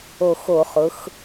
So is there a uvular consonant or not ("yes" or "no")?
yes